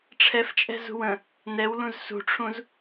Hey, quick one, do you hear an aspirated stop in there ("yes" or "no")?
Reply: yes